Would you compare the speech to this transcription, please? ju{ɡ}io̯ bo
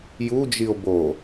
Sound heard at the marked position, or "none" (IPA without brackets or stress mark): d͡ʒ